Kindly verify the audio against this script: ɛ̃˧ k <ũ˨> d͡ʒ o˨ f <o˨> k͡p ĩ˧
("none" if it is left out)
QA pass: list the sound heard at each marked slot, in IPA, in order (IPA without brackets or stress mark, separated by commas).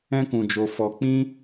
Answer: ũ˨, ɔ˨